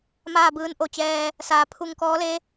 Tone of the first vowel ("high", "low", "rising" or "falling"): falling